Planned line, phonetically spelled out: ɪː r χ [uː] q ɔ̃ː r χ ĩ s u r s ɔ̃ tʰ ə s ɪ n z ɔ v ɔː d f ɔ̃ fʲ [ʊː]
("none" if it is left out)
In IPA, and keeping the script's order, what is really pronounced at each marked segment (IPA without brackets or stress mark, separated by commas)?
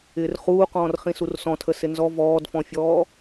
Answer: uː, ɔː